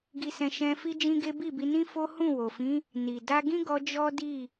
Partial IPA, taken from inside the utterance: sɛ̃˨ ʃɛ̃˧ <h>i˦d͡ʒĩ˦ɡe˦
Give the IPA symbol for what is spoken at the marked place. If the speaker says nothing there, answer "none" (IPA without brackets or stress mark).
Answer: f